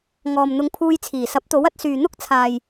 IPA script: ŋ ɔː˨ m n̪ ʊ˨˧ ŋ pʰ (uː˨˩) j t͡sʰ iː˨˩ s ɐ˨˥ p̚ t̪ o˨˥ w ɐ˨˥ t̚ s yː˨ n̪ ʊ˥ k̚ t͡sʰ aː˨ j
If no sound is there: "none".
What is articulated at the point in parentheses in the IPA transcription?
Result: uː˧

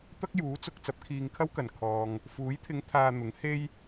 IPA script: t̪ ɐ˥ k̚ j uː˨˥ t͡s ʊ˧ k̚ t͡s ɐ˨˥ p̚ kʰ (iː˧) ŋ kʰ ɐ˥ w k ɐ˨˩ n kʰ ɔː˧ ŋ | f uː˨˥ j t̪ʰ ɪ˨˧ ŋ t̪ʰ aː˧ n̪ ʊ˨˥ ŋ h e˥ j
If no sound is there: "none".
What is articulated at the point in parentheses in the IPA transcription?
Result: iː˧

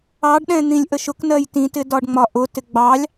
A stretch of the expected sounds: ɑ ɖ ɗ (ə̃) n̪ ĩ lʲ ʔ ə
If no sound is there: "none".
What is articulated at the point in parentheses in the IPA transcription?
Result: ɛ̃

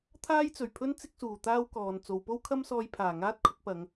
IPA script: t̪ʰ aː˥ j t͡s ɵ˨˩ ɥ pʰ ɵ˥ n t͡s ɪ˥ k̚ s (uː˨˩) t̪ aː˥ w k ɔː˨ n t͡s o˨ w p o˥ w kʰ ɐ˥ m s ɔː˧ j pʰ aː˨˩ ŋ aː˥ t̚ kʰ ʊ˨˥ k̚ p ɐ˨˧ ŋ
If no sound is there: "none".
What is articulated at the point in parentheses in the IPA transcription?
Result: uː˨˩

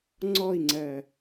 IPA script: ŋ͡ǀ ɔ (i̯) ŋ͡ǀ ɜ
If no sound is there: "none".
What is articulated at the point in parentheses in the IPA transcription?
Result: i̯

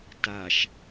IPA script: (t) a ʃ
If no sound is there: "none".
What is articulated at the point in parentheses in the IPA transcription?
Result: t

